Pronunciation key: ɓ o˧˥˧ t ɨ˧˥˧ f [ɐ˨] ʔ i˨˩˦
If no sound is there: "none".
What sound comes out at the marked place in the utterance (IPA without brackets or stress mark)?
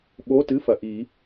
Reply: ɐ˨